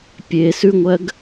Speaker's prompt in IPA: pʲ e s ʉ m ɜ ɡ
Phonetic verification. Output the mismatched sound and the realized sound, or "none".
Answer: m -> ŋʷ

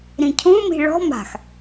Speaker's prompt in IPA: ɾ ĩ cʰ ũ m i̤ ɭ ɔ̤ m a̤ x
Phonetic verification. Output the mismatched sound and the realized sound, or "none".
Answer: none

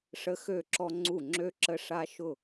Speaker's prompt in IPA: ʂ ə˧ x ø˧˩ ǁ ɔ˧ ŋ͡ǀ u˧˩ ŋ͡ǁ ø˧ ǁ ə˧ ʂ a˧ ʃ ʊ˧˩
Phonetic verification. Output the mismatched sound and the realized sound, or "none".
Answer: none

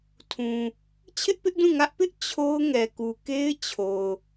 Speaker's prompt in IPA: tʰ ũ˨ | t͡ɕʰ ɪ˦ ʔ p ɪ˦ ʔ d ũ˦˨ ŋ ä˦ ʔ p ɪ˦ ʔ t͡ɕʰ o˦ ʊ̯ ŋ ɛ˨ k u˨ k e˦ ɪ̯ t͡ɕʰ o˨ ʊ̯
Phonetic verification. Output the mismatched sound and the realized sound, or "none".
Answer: none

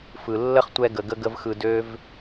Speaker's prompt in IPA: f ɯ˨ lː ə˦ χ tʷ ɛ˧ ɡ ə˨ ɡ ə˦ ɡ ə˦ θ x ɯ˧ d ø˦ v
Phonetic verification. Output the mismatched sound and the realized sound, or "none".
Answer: θ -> v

